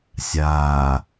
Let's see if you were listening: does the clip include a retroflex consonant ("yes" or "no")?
no